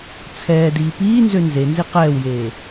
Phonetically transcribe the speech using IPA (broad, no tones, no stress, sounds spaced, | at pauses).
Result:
t͡sʰ ɛː d iː p iː n z ø n z e n z i q ɛː w j eː